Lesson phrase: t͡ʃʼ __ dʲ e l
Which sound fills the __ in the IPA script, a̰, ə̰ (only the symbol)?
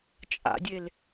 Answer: a̰